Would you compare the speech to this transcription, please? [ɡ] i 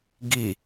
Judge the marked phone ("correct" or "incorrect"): correct